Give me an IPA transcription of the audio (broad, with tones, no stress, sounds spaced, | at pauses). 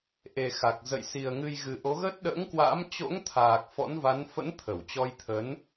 ʔ e˨˩ x a˨˩ k̚ z ə̰˧˨ j s i˨˩ ə̯ ŋ ɨ˧ j ɣ ɨ˨˩ ʔ o˨˦ ɣ ə˦˥ t̚ ɗ ə̰ː˧˥ ŋ k w a̰˧˥ m t͡ɕ o̰˧˥ ŋ t̪ʰ aː˨˩ k̚ f ɔ̰˧˥ n v a˨˦ n f ə̰˧˥ n t̪ʰ ə˧˩ w t͡ɕ ɔ˧ j t̪ʰ ə˨˦ n